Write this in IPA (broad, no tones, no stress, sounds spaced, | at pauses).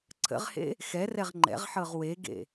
ǀʰ ə̰ ʁ h ḛ | x ɛ r ɛ ʁ ŋ͡ǃ ɛ̰ ʁ ħ ɤ ʁ w e ɡ ḛ